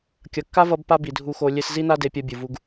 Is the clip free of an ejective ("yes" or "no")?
yes